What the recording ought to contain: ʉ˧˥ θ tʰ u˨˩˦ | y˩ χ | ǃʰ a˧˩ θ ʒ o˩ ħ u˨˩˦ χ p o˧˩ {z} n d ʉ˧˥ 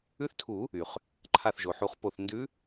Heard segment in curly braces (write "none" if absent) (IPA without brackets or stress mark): θ